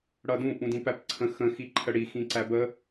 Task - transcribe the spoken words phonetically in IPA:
ɽʌdũ ʔũdĩpæp ǀʰə̃ xə̃ xiǃʰəɽi xĩǀæbə

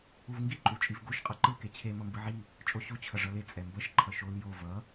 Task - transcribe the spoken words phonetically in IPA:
uvŋɡi ǃʼut͡ʃʼivɡoʃ qʼʌǃɯ ket͡ɕʰe mʌmbɯʕi | t͡ʃʼoɕu t͡ɕʰʌʐʌle t͡sʼɛmbʌʃ ǃʰʌʃol jo vʌ

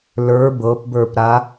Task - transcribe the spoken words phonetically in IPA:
lə˞ bɤpbə˞pɾa

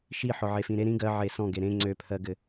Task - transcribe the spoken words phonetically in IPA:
ʃi ħɔʕefĩɾe ɾĩ ɡɜ ʕesɔ̃ ɡeɾẽ ŋ͡ǀøpʰɜɡɘ

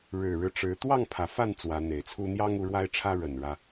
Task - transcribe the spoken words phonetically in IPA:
ɻɻ̩˨˩ɻɻ̩˦ʈ͡ʂɻ̩˨˦ t̪wɑ˥˨ŋpʰä˩fa˥˨n t͡swä˨˦n̪e˨˩ɪ̯t͡sʰu˦ n̪jɑ˦ŋu˨˦ ɻwa˦ɪ̯ʈ͡ʂʰä˦ɻə˨˩n ɻä˦

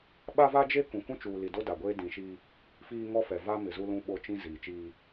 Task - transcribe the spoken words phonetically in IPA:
ɓa˦va˦d͡ʒe˦ kũ˨kũ˦t͡ʃuː˨li˨ do˦da˨ɡʷeː˦ dĩ˨ʃi˦ | fiː˦ŋɔ˦fɛ˨ va˦ mɪ˨zu˦lũ˦ɓo˦˨ t͡ʃĩ˦ ziː˨t͡ʃiː˦

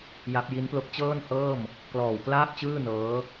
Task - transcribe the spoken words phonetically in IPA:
ja˦˥p̚ ji˦˥nplo˦˥k̚ t͡ɕɤː˥˩nhɤː˥˩m | klɔː˨˩wklaː˥˩p̚t͡ɕɯː˥˩ nɤː˦˥

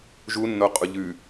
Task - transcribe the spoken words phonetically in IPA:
ʒunːoqʼu ʎʉ

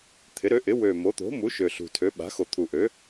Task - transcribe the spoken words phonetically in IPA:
t̪ʰɪ˩˥ɾø˩˥ʔɪ˩˥ wø˨˩ mo˩˥t̪o̤˩˥mu˩˥ ʃø˨˩ɬṳ˨˩tʰø˩˥ ɓa̤˩˥xo˨˩ t̪ʰu˨˩ʔø˩˥

